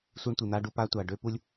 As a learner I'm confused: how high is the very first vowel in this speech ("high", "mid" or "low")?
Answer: high